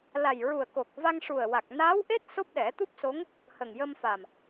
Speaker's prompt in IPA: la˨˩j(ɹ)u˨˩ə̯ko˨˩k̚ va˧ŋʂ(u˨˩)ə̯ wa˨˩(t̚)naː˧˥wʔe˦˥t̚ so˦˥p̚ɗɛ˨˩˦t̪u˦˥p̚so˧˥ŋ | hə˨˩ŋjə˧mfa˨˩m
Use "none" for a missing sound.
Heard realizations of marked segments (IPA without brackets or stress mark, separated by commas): ɹ, u˨˩, k̚